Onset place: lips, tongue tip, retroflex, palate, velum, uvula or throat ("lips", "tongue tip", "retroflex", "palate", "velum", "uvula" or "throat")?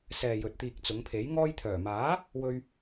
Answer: tongue tip